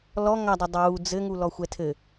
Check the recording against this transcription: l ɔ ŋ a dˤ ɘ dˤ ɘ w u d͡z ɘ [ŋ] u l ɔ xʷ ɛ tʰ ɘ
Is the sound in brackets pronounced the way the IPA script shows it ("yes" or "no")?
yes